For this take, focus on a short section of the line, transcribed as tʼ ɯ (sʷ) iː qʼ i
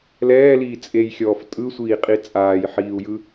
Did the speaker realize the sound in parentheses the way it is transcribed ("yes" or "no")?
yes